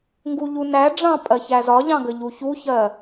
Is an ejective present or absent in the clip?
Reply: present